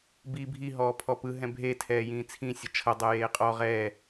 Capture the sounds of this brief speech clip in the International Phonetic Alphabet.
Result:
bi bʱi ɦɔːpʰɔpɯ ɦɛ̃bʱe tʰɛːjĩːt͡sʰĩ sʲɤt͡ʃʰɤ dˤɛjeːqʼɔ ʁɛː

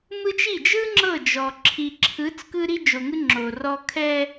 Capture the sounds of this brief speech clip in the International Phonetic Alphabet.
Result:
mɯ˦t͡ʃi˦˨ d͡ʒɯ˦ ŋ͡ǁɤ˦˨ d͡ʒɔ˨ǁʰi˨ ǁʰɯ˨˦t͡s kɯ˦ɾi˦d͡ʒo˨ŋɯ˦ ŋ͡ǁo˨rɔ˦ kʰɛ˦

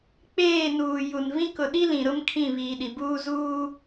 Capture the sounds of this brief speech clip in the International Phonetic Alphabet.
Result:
k͡peː˦˨nuː˨ ju˨nvĩ˦ kʊ˨ɗi˦ lĩ˨ɾʊ˦m kʰĩ˦˨βiː˨ɗi˨buː˦ zuː˦

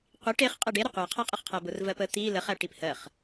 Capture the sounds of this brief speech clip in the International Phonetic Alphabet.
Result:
qʷiʈ eχ qʼeɖeɾə qʷæqʰæqʼəχqʰæ bʊrvɜpə t̪i ləχæ ʈiphɜχ

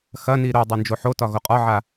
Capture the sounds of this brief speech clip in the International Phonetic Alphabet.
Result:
xɐni ɾo dˤond͡ʒoħotɒ ɣoqʼɒʕa

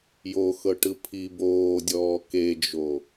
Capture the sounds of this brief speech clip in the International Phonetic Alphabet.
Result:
joxɤʈɯ pʰi boːdʲɔː ked͡ʒo

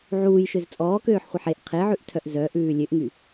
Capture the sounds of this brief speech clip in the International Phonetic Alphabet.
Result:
ʕuːjʃøz t͡sʼɔːkøːħχʷɛħ eʔ qʰeʕʉʔtʰœʔ zœʔʉː lʲøʔŋy

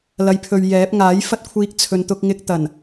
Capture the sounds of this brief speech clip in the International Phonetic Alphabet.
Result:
lɐ˨˧jpʰɵ˨ɥ jɛː˨˥p̚ ŋaː˨˥jfɐ˥t̚kʷʰiː˧k̚ t͡sʰɵ˨nt̪ʊ˧k̚ŋɪ˧k̚t̪ɐ˨˩n

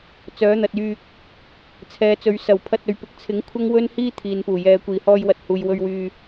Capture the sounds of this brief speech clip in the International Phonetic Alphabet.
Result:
t͡sœː˨˥n̪ɐ˨t̚jyː˧k̚ | t͡sʰɛː˨˧t͡sɵ˨˧ɥ sɐ˨˩w pʰɐ˧t̚ɵ˨ɥ pɪ˨˥k̚t͡sʰɪ˨˥ŋ kʷʰɐ˥ŋwɵ˥nhiː˥ t̪ʰiː˨npuː˨˩ jɛː˨kʷiː˨˩ hɔː˧jwɐ˨˥t̚ huː˨jwɵ˧ɥwyː˧

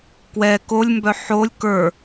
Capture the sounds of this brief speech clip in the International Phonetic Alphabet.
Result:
kwɛ kolʲmbœ ħolʲ kə˞

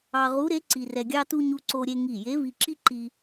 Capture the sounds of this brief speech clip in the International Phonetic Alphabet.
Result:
ɑ˧ʁu˧˥ɾe˧˥ ǀi˧rɛ˧ɡʲɑ˥tu˥ ɲu˧ǀo˧ɾʲe˧ ŋi˧˩je˧˥vi˧ǁi˥ ǃi˧

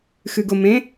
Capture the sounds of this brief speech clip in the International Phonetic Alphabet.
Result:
xɨɡʊ mẽ

